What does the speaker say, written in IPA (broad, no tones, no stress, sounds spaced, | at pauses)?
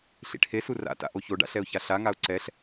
ɬ ḭ ʈʰ e s u r a̰ t a̰ ʔ o ç o ɖ a̰ ɬ ɛ ʊ̯ ç a ɬ a ŋ a ʊ̯ ǀ ɛ ɬ